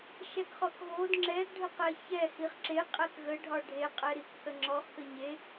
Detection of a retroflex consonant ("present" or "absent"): present